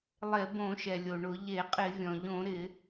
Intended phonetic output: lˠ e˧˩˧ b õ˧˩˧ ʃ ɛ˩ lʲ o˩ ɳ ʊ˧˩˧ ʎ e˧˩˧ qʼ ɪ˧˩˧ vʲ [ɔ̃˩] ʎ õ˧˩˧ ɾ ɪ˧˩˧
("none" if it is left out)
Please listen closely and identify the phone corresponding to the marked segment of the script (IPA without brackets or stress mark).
ɔ̃˩